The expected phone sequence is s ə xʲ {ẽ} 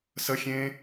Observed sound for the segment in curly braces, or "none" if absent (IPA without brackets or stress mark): ẽ